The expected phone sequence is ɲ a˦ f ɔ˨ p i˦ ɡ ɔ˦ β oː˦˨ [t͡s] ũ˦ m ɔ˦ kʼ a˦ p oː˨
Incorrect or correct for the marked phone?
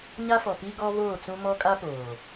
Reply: correct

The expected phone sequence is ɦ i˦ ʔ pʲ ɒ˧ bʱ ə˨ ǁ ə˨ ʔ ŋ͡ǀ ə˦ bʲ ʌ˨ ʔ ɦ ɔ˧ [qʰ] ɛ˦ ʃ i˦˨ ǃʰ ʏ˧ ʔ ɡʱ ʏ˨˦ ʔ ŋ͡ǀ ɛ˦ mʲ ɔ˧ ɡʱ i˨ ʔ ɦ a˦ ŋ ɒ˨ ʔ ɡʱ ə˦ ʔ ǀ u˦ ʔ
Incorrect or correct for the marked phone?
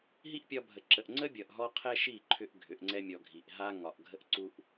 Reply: correct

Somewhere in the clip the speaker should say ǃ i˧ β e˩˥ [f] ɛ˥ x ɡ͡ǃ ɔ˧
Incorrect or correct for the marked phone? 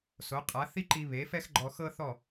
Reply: correct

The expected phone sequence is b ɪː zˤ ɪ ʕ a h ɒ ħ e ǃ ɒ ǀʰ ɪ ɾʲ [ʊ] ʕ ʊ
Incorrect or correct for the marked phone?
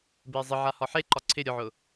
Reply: correct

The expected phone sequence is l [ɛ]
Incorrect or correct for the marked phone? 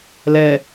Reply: correct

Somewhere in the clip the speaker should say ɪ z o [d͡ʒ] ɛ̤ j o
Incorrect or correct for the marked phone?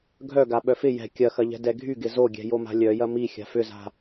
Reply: incorrect: ɡʲ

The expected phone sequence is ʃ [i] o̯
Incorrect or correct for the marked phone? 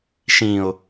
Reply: incorrect: ĩ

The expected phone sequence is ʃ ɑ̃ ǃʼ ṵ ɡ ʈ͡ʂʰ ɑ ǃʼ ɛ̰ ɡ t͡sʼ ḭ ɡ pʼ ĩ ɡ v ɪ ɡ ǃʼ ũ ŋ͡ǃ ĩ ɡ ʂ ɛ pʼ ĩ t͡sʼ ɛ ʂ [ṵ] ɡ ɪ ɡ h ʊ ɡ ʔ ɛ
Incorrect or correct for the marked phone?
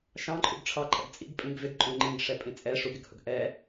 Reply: incorrect: u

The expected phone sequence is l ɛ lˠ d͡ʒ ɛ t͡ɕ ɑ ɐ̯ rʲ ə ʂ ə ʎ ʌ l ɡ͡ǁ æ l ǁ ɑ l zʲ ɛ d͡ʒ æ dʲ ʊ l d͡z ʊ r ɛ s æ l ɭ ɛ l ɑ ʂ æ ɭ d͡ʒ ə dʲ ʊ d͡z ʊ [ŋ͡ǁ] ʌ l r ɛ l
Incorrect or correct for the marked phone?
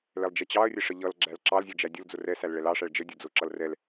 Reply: incorrect: ǁ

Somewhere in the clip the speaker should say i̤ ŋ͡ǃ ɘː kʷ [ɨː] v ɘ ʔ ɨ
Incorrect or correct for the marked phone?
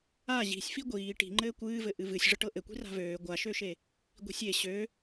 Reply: correct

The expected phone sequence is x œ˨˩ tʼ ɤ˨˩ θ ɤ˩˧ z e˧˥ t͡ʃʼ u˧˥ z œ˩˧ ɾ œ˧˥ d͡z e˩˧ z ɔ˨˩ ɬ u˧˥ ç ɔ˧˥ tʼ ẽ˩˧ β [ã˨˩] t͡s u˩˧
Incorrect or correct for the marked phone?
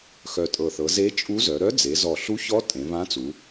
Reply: incorrect: ã˧˥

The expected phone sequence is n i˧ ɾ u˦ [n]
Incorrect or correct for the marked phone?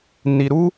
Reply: incorrect: none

